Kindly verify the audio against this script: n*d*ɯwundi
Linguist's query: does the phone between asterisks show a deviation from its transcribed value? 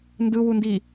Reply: no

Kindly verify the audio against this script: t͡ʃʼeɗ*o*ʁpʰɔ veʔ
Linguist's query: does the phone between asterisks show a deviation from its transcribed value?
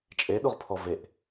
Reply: yes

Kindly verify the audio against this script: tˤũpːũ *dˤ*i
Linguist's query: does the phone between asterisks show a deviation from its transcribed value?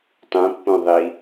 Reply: yes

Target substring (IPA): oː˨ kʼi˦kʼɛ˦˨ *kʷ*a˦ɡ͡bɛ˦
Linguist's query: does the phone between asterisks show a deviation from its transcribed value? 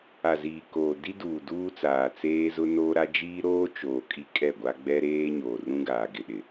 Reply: yes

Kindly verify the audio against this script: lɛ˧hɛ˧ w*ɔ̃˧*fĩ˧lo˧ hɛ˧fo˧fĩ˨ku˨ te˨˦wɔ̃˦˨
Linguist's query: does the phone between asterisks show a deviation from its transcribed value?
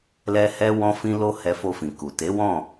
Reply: no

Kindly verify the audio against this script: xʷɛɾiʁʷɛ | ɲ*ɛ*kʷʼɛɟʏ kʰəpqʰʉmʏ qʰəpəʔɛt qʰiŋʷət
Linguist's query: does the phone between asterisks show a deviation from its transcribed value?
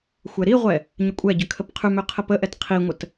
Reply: yes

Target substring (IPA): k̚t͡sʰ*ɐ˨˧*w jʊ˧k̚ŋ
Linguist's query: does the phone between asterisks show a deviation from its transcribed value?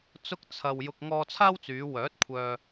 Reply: yes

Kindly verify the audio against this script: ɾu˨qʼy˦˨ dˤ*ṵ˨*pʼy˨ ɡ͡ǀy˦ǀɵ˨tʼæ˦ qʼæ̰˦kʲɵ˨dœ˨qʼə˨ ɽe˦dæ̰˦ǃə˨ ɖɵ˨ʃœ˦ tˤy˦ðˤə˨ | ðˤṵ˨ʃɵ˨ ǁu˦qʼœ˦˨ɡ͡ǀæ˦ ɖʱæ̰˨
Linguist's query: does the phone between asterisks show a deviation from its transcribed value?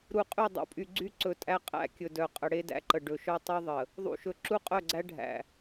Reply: no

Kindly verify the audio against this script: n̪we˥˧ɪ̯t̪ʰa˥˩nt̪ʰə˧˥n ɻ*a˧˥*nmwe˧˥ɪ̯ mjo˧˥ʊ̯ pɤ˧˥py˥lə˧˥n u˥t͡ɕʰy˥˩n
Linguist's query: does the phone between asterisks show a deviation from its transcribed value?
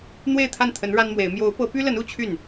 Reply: yes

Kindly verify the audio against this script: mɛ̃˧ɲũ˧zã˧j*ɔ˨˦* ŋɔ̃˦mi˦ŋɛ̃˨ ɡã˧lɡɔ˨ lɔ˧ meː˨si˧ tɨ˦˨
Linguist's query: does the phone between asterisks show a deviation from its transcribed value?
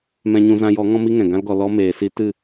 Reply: no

